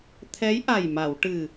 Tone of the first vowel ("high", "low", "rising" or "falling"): rising